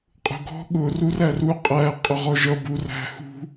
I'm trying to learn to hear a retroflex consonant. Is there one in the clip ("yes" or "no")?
no